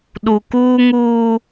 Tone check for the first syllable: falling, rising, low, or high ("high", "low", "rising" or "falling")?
low